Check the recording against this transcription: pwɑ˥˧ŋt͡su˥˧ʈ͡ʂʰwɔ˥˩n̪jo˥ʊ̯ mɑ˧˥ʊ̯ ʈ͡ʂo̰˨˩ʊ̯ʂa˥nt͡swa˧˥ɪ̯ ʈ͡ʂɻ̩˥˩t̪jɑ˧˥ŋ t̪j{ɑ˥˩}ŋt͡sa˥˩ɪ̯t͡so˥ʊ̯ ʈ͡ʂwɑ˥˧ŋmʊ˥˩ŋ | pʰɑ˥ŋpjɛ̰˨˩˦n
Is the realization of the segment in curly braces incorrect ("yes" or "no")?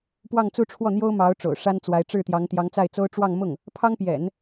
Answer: yes